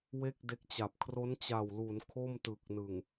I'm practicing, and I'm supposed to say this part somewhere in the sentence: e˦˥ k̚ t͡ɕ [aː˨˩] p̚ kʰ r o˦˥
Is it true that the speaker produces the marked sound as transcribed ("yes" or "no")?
no